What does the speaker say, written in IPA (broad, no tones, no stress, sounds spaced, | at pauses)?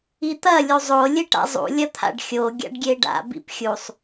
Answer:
i t̪ ɐ lʲ u zˤ o lʲ e ʈ a̰ zˤ ṵ lʲ ɐ t̪ʰ a̰ ɖ xʲ o ɡʲ a̰ ɖ ɡʲ e ɖ a̰ b ḭ p xʲ u sˤ